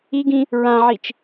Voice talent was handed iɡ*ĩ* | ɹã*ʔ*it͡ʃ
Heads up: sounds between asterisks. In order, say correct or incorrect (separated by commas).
correct, incorrect